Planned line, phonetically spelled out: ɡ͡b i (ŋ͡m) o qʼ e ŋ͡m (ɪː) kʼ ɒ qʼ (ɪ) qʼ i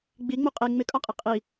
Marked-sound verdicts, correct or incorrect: correct, incorrect: ɪ, correct

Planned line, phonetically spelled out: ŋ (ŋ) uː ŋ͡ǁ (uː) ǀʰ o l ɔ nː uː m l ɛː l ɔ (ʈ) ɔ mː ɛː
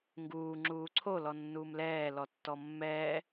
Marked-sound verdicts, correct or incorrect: incorrect: ɡ, correct, incorrect: tː

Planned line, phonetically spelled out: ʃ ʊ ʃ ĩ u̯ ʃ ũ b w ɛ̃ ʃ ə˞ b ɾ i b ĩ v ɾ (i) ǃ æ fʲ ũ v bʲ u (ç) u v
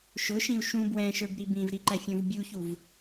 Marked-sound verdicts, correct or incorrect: correct, correct

